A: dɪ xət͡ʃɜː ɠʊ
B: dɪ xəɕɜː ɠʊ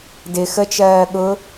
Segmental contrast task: A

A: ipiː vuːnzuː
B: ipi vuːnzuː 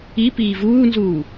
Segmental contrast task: A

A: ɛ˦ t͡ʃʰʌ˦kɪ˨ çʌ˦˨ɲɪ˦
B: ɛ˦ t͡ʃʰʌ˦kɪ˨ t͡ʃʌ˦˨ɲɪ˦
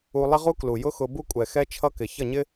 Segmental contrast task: A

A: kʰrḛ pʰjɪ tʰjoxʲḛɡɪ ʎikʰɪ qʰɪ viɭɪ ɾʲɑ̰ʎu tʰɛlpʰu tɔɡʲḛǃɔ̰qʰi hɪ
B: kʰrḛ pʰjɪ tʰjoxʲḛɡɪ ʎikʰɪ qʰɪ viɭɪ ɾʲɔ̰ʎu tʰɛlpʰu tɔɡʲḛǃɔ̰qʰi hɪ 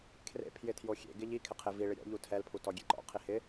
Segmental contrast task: B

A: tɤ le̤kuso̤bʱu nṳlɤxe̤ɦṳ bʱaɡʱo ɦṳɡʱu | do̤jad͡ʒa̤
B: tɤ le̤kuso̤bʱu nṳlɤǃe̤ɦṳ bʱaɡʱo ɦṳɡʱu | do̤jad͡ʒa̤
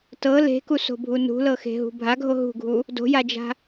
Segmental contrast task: A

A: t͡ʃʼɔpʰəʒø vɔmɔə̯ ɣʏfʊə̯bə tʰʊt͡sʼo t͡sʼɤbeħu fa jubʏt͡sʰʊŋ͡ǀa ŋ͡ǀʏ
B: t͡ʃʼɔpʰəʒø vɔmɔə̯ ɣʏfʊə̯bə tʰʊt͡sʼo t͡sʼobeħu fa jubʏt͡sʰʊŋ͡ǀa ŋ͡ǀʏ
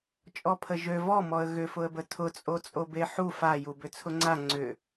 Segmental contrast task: B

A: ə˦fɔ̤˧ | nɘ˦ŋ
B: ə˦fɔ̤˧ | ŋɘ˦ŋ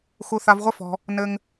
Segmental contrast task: A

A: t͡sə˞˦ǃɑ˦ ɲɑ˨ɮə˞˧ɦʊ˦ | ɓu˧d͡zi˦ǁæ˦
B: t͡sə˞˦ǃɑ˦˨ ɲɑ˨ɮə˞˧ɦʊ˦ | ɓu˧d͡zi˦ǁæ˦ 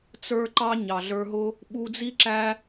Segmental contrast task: A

